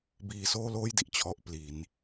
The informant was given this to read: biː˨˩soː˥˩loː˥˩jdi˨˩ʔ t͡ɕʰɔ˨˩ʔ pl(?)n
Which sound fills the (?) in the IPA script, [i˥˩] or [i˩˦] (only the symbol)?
i˩˦